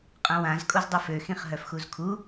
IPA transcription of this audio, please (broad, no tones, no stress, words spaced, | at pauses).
qʼœ̃wãz kʼozdˤøfø xĩχɦœfxuzkʰu